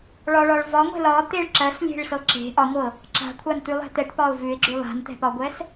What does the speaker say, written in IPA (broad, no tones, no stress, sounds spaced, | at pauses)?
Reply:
ɭ ɒ ɭ ɒ ɭ v ɒ ŋʷ ɛ̤ l ɒ t̪ e ɭ ǁ ɜ s lʲ e̤ ɭ s ɤ ǁ e̤ ʔ ɒ ŋʷ ɤ | ǁ a̤ kʷʰ a n t̪ ʉ lˠ ɛ̤ t̪ ɛ ʈ p ɒ ʊ̯ v ʉ ɪ̯ ɡ͡ǁ ʉ lˠ a̤ n t̪ ɛ̤ p ɒ ɡʷ ɛ s